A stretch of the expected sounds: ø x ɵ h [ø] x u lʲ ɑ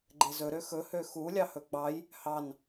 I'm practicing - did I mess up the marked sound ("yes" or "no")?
no